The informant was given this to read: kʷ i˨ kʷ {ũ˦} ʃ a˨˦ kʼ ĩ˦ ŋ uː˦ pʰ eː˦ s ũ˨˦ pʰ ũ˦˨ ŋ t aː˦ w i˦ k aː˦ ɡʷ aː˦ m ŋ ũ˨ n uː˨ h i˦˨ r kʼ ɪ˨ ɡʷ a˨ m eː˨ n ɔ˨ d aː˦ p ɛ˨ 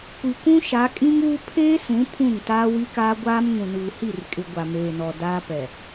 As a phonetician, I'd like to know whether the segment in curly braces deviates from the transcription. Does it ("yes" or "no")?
no